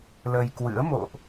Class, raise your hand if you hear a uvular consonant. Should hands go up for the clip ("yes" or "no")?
no